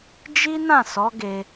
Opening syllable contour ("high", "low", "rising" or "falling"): high